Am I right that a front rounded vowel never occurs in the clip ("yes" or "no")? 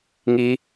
yes